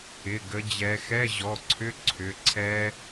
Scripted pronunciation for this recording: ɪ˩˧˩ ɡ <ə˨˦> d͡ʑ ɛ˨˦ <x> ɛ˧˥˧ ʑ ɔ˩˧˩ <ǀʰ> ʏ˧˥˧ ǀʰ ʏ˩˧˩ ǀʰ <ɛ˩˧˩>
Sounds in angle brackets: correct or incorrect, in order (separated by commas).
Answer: correct, correct, correct, incorrect